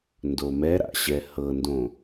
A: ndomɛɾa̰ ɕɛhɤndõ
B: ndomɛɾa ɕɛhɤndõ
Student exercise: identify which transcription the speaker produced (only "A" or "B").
A